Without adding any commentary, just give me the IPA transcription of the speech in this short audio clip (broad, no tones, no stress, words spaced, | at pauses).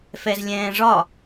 fɛzlʲɛ̃ːʐɒ